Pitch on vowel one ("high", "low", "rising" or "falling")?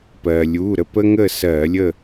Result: low